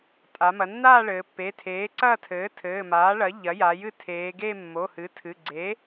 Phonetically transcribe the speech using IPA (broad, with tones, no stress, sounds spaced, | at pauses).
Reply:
tʼ a˩˧ m ɐ˩˧ nː aː˥˧ ɭ ɘː˩˧ pː e˩˧˩ tʰ eː˩˥ ǀ ɐː˥˧ tʰ ɘː˩˥ tʰ ɘː˩˧˩ m aː˩˥ ɭ ɐ˩˥ ʎ ɐ˩˥ j a˩˧ j ɨ˥˩ tʰ eː˩˧ ɡ e˥˧ mː o˩˧˩ h ɨ˩˥ tʰ ɨ˩˧˩ ɡ͡ǀ e˩˥